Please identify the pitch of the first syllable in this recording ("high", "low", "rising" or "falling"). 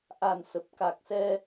low